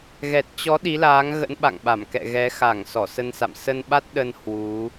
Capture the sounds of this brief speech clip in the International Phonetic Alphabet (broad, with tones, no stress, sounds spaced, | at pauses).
ɣ ɛ˨˩ t̚ t͡ɕ ɔ˨˦ ɗ i˨˦ l aː˨˦ ŋ ɣ ə̰˧˥ n ɓ a̰˧˨ ŋ ɓ a˧˩ m k ɛ̰˧˨ ɣ ɛ˨˦ x a˧˩ ŋ s ɔ˧˩ s ə˧ n s a̰˧˨ m s ə˧ n ɓ a˦˥ t̚ ɗ ə˧ n h w u˨˦